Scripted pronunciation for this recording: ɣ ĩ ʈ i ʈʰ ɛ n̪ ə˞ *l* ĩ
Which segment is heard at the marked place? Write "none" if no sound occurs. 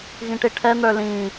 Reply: l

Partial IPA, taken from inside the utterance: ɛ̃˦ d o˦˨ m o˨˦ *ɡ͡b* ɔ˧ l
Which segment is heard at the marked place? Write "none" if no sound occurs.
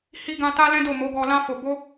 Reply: ɡ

